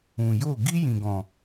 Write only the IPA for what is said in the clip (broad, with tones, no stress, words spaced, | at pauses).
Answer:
ũ˨jo˦˨ ɡi˦jĩ˨ɡɔ̃˨